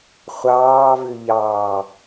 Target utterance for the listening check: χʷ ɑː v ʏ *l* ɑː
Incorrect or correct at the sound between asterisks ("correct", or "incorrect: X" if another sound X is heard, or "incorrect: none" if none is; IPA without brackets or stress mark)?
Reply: incorrect: ʎ